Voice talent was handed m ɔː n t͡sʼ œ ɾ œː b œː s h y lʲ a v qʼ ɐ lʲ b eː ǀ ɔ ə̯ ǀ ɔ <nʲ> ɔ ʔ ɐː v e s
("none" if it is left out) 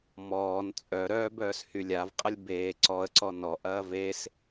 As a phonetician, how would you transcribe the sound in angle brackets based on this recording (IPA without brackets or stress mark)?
n